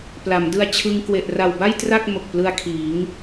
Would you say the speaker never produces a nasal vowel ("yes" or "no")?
yes